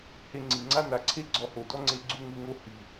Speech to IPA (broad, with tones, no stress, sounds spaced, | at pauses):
h e˧ ŋ͡ǀ i˨ ŋ͡ǀ a˦ n a˨ ǀʰ e˦ ɡ͡ǀ ɔ˧ h o˨ d ɔ˦ ŋ͡ǀ e˧ ɡ͡ǀ u˧ ŋ u˧ ŋ o˧ h i˨